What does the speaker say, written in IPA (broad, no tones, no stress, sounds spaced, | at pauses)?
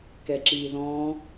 k ɛ ǁ i ð ɔ̃ː